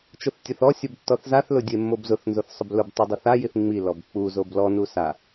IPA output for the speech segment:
t͡ʃ ʊ θ tʲ ʊ θ ɔ sʲ ʊ b tː ɔ θ z a θ l ʊ dʲ e mː o b z ʊ θ n z o θ sˤ ʊ b l ʊ b tˤ u dˤ ʊ θ a j i θ ŋ͡m i l ɔ b k͡p u z o b l ɔ n u s a

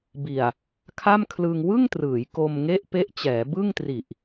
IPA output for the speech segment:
b i˨˩ a̯ | kʰ a˥˩ m kʰ l ɯ˧ ŋ w ɯ˥˩ ŋ t r ɯː˩˦ j k o˧ m ŋ e˥˩ ʔ p e˦˥ ʔ t͡ɕ ɛː˩˦ b ɯ˥˩ ŋ t r i˨˩ ʔ

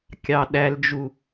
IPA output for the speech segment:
kʲ ɑ ɗ æ l d͡ʒ u

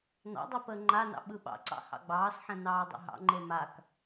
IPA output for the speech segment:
n ɑ̰ dˤ ɛ p əː ŋ͡ǃ a n ɑ̰ ɓ ɯ ɓ ɑ̰ ǀ ɑ̰ h ɑ̰ ɡ͡b ɑː s ħ ɛ̃ n ɑː dˤ o̰ ɦ ɑ̰ ŋ͡ǃ e m a k

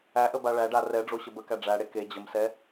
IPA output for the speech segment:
æ ʔ ə b a ɭ æ ɖ a r ɛ ɖ͡ʐ o ɕ ə b ə k æ ɖ͡ʐ æ ɽ e k e d͡ʑ ə m s ɛ

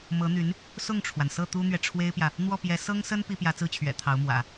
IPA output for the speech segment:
m ɤ˧˥ n̪ y˧˥ n | s ʊ˥˩ ŋ ʈ͡ʂʰ w a˩ n s ɤ˥˩ t̪ u˥ n̪ ɥ ɛ˨ ʈ͡ʂʰ w e˥ ɪ̯ p j ä˨ | n̪ w ɔ˥˩ p j ɛ˧˥ s ɤ˥ ŋ s ə˥ n p i˥ p j ä˧˥ t͡s ɹ̩˥˩ t͡ɕʰ ɥ ɛ̰˨˩ t̪ʰ ɑ˧˥ ʊ̯ m w ä̰˨˩˦

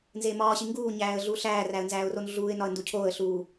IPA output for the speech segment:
n z e m ɒː ɕ i ŋ ɡ uː ɲ æː ə̯ ɮ uː ɬ æː r æ ə̯ n z æː ʊ̯ r o n ɮ uː ɪ̯ n ɒ ə̯ n d u cʰ oː ə̯ ɬ uː

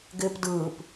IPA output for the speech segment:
ɡ ɪː p d ɯː p

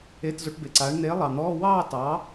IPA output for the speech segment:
e˧˥˧ t z o˨˥ ʈ b e˨˩ ǀ aː˨˥ ɳ n̪ eː˨˥ lˠ ɑ˨˩ n̪ ɔː˧˥˧ w ɑː˥˧ t ɑː˨˥

